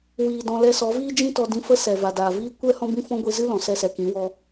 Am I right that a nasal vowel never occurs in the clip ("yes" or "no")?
no